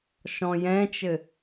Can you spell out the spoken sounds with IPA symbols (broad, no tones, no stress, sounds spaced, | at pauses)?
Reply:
ʃ ɔ̃ j ɛ̃ t͡ʃ ɘ